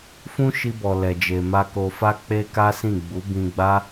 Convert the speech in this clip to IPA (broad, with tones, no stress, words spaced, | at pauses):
fũ˦ʃi˧bɔ˨ lɛ˨d͡ʒe˨ ma˧ko˧fa˦ k͡pe˦ka˦sĩ˦˨ ɡ͡bu˨˦bĩ˧ɡ͡ba˦